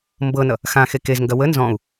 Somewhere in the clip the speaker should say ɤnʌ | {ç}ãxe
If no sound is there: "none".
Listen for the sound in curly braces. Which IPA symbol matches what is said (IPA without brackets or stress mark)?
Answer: x